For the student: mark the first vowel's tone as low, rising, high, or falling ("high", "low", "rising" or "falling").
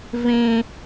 high